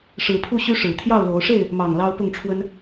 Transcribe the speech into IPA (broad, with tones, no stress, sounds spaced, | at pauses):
ʂ ɻ̩˨˦ pʰ u˥˨ ɕ y˦ ʂ ɻ̩˨˩ t̪ʰ j ɑ˥˨ ʊ̯ l o˨˦ ʊ̯ ʂ e˥˨ ɪ̯ | m ɑ˨˩ ŋ l ɑ˦ ʊ̯ p ʊ˥˨ ŋ ʈ͡ʂʰ w ə˦ n